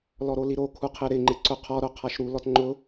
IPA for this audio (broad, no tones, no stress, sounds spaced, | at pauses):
l ɔ ɾ o l i ɾ o kʰ u qʰ e ɾ ɪ ŋ͡ǃ ɪ ǀ ʊ qʰ ɔ ɾ o qʰ a ʃ ɾ u l ɔ t ŋ͡ǃ ʊ